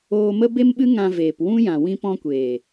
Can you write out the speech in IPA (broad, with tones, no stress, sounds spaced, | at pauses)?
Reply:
oː˧ m ə˦ b e˦ m ɓ ɨ˦ ŋ ã˧ v eː˨ p w ũ˦ j ã˨ w ĩ˧ p ɔ̃˧ kʷ eː˨